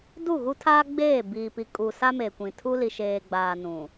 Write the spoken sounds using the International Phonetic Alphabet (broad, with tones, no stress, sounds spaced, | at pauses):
d u˦˨ ɣ u˦ tʰ aː˦ ɡ͡b eː˦˨ b iː˨ p i˨ kʼ u˨ s a˦ m eː˨ kʷ ĩ˨ tʰ u˦ l i˨ ʃ eː˨ ɡ͡b aː˨ n ũ˨